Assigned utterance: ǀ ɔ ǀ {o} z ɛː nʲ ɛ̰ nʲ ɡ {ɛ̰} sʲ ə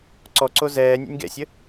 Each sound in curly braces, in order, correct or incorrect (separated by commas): correct, correct